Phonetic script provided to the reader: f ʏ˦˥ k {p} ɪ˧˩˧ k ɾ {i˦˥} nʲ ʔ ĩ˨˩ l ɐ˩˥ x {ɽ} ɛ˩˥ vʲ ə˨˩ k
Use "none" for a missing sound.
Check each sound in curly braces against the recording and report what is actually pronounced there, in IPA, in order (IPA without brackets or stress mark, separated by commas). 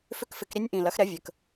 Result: f, i˦˥, ɾ